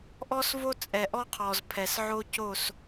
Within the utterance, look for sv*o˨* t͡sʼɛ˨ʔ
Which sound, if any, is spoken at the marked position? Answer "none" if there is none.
o˦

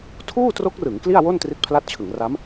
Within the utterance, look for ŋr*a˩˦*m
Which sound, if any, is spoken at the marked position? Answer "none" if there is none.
a˦˥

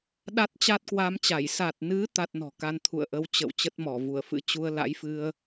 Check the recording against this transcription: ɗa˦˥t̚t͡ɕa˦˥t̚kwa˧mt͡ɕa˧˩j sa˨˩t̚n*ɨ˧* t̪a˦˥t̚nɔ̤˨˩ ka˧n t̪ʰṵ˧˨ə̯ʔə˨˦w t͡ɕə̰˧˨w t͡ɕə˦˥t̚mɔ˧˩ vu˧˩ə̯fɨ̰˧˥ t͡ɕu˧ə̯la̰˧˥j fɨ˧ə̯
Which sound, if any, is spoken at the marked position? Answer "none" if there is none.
ɨ˨˦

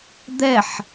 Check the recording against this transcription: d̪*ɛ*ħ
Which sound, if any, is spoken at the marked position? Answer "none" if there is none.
ɛ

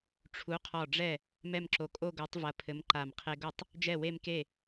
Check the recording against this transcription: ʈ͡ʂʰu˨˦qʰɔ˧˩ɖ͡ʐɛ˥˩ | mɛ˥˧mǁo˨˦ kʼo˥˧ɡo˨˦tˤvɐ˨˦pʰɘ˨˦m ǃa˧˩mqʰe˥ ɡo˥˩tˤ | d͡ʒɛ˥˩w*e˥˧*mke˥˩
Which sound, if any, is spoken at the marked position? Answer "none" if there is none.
e˥˧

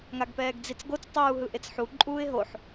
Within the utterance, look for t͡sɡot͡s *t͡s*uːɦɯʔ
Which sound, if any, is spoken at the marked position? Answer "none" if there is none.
tˤ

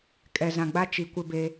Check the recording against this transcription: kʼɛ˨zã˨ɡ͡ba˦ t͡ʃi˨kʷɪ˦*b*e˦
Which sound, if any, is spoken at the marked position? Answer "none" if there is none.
b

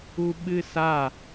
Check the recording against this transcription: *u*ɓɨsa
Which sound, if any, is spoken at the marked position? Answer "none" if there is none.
u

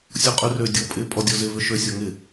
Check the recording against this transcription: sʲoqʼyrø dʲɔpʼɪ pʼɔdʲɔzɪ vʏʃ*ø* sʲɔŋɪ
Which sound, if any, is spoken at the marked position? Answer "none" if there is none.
ø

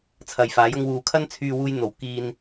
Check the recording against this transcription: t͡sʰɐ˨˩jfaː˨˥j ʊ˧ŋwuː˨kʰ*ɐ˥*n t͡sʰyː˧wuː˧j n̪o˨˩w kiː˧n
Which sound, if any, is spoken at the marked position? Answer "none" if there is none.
ɐ˥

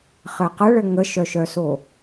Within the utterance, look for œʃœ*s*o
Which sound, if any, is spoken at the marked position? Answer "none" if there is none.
s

